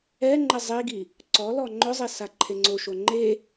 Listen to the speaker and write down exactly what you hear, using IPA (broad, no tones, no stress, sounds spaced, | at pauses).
ɛ ŋ͡ǃ ɪ zˤ i ɡ i | ǀ ɔ l ɔ ŋ͡ǃ ʊ zˤ i s a ǃʰ e ŋ͡ǀ o ʃ o ŋ͡ǃ e